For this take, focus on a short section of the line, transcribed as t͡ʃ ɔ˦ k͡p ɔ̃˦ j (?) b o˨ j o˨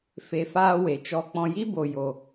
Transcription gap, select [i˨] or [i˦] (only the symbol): i˦